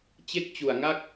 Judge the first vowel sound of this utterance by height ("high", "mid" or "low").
mid